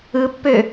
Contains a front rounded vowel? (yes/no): yes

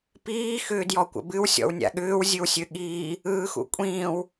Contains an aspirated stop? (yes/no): no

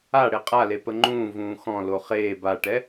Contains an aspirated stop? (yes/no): no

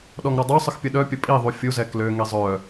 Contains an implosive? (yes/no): yes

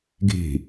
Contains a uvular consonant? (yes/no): no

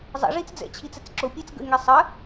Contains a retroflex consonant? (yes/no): yes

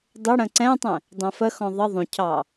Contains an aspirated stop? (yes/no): yes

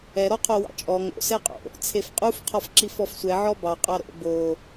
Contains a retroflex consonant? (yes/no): no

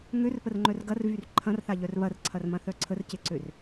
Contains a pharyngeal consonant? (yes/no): no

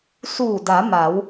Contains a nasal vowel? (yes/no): no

